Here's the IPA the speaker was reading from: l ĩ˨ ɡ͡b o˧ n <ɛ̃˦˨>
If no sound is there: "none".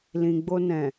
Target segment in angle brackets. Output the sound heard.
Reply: ɛ̃˨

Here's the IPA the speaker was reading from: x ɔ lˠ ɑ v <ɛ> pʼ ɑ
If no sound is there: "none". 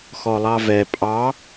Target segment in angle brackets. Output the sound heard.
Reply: ɛ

